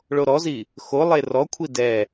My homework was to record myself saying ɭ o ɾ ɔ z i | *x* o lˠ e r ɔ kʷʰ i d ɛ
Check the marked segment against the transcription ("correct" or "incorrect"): correct